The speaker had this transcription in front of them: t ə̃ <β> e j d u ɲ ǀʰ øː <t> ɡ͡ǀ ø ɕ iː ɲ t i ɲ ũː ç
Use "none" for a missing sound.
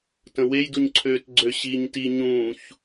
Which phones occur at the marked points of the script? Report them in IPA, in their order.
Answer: w, t

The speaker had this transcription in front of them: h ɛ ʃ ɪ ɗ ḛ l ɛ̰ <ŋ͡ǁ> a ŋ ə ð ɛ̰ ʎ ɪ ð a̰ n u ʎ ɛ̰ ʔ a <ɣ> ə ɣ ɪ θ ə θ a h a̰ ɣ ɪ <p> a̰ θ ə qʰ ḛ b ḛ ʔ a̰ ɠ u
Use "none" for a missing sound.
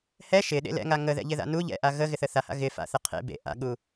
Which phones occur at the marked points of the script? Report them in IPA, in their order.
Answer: ŋ, ɣ, f

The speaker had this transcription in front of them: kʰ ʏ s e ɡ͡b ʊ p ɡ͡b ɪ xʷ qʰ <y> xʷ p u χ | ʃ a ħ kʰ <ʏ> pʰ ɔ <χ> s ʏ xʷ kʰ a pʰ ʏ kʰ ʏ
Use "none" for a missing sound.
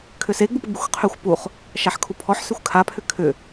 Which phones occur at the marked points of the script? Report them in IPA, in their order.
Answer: y, u, ħ

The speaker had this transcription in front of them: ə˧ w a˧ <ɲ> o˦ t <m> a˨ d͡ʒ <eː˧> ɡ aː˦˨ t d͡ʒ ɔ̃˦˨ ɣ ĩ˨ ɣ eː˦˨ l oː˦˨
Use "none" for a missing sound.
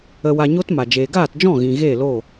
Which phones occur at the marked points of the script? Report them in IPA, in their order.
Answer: ɲ, m, eː˨

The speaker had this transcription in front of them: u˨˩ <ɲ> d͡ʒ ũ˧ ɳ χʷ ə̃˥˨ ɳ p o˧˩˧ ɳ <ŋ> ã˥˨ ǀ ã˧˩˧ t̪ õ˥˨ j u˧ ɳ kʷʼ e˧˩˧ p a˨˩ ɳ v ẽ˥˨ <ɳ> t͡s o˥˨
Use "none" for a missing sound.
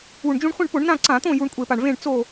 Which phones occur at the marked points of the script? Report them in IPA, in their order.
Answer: ɳ, n, ɳ

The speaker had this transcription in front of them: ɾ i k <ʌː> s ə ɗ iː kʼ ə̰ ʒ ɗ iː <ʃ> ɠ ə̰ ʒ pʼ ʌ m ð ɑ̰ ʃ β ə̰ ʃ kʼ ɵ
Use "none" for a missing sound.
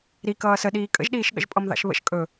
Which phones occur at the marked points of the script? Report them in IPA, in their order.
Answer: ʌː, ʃ

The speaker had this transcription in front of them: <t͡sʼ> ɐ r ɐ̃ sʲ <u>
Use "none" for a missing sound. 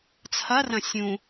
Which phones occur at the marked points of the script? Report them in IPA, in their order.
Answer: t͡sʰ, ũ

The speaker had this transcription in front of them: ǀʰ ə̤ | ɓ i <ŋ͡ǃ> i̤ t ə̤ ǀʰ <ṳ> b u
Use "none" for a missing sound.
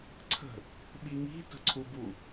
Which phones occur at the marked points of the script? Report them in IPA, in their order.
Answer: ŋ, u

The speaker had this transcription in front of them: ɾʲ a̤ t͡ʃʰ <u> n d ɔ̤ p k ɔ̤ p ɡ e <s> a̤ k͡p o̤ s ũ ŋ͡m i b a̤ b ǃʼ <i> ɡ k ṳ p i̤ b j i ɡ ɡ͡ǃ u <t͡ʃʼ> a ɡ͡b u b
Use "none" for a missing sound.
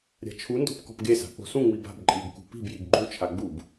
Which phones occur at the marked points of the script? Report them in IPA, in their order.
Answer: u, s, i, t͡ʃʰ

